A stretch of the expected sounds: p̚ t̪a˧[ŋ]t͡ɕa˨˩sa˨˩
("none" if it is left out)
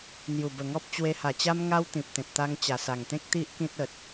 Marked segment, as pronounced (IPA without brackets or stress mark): ŋ